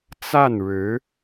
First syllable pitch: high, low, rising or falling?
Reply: falling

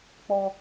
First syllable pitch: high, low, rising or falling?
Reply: high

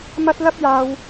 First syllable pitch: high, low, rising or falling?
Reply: high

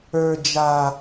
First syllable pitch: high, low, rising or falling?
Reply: low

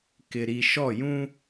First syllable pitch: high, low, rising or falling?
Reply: low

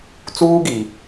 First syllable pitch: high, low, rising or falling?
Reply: high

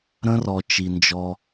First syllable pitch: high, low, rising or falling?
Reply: high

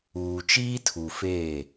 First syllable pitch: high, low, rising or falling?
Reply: low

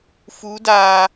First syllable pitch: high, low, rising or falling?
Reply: rising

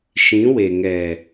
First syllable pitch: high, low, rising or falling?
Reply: rising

